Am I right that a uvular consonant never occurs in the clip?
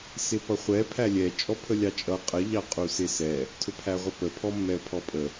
no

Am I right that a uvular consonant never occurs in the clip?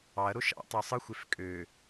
yes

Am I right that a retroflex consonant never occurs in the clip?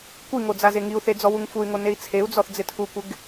yes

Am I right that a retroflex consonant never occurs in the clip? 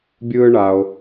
no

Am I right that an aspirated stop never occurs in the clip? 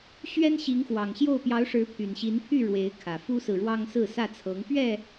no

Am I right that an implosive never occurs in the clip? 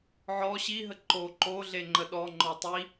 no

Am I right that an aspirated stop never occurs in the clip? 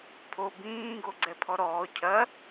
no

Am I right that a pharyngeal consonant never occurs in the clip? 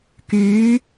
yes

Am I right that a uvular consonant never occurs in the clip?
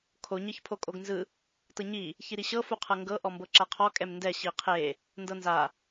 no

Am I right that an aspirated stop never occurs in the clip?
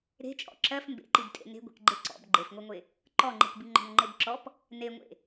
yes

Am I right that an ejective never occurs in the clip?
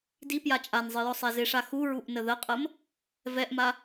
no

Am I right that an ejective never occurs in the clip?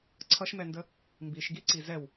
yes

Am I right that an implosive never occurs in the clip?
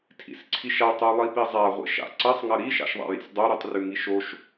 yes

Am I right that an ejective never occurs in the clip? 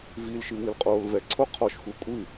no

